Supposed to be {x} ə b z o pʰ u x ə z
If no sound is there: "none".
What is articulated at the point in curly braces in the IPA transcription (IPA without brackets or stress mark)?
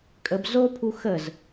kʼ